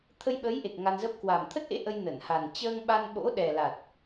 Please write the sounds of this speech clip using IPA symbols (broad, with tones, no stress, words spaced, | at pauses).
t̪ʰə˧jɓə˨˦jʔe˨˩k̚ ŋa˧nzə˦˥p̚ kwa˨˩m t̪ʰə˦˥t̚ʔḛ˧˥ ʔə˧j nə˧˩nha˨˩n t͡ɕəː˧ŋɓa˧n ɓo̰˧˥ɗɛ˨˩la˨˩t̚